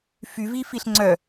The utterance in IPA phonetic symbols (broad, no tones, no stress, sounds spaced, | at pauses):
f y v i f i ɬ ŋ͡ǀ œ